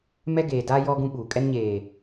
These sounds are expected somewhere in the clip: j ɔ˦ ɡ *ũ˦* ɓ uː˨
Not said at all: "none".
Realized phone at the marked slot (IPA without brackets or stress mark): ũ˦